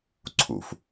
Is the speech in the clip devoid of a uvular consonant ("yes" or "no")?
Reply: yes